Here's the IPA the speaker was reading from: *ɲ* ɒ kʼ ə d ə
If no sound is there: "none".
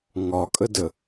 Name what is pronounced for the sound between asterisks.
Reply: ŋ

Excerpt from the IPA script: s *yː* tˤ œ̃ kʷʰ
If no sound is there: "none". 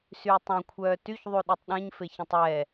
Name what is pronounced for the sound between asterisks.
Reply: yː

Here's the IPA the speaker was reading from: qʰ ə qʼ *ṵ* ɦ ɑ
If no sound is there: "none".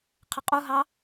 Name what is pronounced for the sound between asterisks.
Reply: u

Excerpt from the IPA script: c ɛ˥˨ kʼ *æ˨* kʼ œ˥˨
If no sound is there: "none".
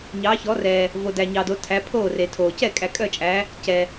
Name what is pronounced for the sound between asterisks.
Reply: æ˨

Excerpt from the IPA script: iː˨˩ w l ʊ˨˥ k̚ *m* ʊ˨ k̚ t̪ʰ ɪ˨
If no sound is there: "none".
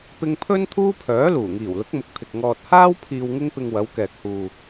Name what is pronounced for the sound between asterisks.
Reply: m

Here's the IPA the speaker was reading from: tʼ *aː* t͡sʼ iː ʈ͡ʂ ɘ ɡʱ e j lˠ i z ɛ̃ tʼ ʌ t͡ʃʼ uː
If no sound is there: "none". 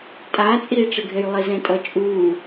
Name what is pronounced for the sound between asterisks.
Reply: aː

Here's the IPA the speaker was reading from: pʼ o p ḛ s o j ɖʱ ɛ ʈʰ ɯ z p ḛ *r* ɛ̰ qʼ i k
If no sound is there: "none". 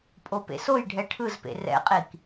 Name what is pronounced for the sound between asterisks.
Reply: r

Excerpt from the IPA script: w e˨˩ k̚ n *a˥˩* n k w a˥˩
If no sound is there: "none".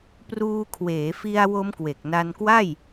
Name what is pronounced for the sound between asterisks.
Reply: a˧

